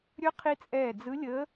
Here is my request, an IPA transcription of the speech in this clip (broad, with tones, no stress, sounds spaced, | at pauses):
ɾʲ ɵ˧˥ qʰ i˧ t͡sʼ ɛː˧˩ d͡z ɯ˧˥ lʲ əː˧˥